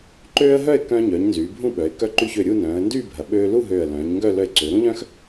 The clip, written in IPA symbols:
ǃ øː˥ ə̯ ɦ œ˥˧ ɪ̯ k œ̃ː˧ ɲ œː˩˧ ɲ n z yː˩˧ bʱ ũ˥˧ ɓ œ˩˧ ɪ̯ k œ˧ ǃ y˧ ç ø˧˩ ɾʲ u˥˧ n œ̃ː˩˧ ə̯ n d yː˥˧ bʱ ɐ˩˧ ɓ øː˧ l u˥˧ ɦ øː˧˩ ə̯ l œ̃ː˩˧ ɲ ŋ ɡ œ˥˧ l œ˧ ɪ̯ ǀ ø˩˧ ɾ ũ˥ ʎ œ̃˥ x

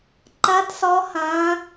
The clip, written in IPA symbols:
ǃ ɐ˦˥ t s ɔ˦˥ h ɐ̃˦˥

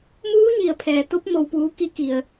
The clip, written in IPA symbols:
m uː˧˥ ɲ i˩ ə̯ pʰ ɛː˩ t̪ o˧˥ p̚ m o˩ w p uː˩˧ k i˩˧ k i˩ ə̯

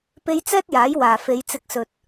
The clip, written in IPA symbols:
p e˥ j t͡s ɛː˥ t̚ j aː˨˥ j w aː˨ f e˨˧ j t͡s ɪ˧ k̚ s ɵ˨ t̚

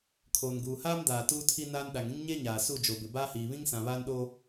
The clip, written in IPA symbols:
kʰ oː˨ n ɡ uː˨ h aː˦ m d aː˨ t uː˦ tʰ i˦ n aː˦ n ɗ a˨ ŋ ĩ˦ ŋ ɲ e˦ ɲ aː˨ s u˦˨ d͡ʒ o˨ b ɪ˨ b aː˦ h iː˨ β ĩ˦ ŋ s ã˨ β aː˦ n ɗ oː˦

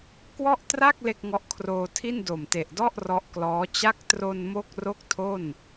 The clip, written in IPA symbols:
k w ɔ˥˩ ʔ t r a˥˩ k̚ l e˥˩ k̚ ŋ ɔ˦˥ ʔ kʰ r oː˧ tʰ i˥˩ n d o˨˩ m t e˨˩ ʔ d ɔ˥˩ ʔ r ɔ˦˥ ʔ k l ɔː˦˥ t͡ɕ a˦˥ k̚ t r o˧ n m o˥˩ k̚ r o˥˩ k̚ tʰ o˥˩ n

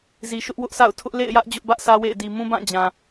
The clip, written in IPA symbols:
z i˨ ʃ ʊ˦ ʔ w ʊ˦ ʔ sʰ a̰˦˨ ʊ̯ tʰ ʊ˦ ʔ l ḛ˦˨ ɪ̯ j ä˦ ʔ d͡ʑ ʊ˦ ʔ b ä˦ ʔ sʰ ä˦ w ḛ˦˨ ɪ̯ d i˨ m ũ˦ b ã˦˨ d͡ʑ ã˨

